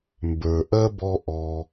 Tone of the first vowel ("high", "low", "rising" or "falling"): low